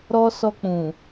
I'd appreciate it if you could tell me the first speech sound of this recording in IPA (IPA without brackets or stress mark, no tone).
ɾ